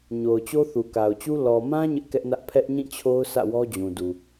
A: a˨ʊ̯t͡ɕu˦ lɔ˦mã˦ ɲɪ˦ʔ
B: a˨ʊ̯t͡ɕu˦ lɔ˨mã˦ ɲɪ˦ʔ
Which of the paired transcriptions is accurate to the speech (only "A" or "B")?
B